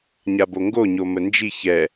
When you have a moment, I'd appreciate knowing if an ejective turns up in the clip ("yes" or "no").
no